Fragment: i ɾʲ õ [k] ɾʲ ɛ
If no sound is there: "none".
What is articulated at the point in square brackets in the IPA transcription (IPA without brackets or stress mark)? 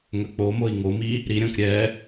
k